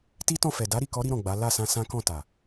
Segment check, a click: absent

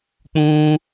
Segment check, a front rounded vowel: absent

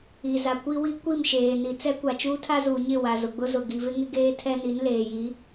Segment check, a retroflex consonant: absent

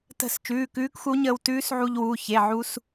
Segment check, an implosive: absent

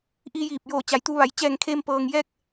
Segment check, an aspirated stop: present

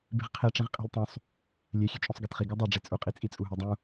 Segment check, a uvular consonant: present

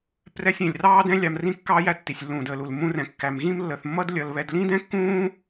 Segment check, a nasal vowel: present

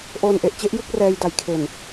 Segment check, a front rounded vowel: absent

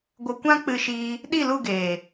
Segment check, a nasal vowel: present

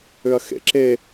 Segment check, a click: present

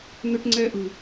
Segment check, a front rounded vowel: present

